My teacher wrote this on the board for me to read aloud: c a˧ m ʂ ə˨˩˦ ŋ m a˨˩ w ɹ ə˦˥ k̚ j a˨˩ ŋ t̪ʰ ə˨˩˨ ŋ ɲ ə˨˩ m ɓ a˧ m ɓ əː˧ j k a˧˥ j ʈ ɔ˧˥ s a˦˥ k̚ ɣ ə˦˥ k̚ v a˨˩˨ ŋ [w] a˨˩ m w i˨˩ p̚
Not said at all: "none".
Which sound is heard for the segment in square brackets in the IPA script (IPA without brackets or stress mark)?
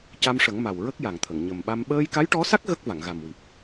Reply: ɣ